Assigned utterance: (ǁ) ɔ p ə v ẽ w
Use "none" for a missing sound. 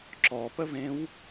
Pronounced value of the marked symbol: ǁ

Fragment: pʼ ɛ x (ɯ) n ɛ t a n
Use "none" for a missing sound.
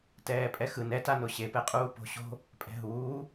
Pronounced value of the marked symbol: ɯ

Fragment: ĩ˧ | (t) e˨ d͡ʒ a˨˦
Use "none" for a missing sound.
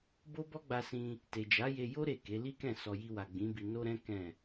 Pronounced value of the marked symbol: t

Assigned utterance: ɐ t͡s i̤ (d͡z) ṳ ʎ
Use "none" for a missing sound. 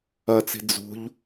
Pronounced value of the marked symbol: d͡z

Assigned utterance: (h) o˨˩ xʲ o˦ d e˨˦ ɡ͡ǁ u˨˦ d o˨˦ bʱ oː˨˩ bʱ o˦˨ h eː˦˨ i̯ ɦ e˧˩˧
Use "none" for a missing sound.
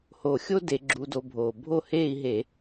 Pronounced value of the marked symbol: h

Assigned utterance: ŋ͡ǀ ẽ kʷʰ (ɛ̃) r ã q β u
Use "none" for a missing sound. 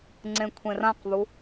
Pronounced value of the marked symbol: ẽ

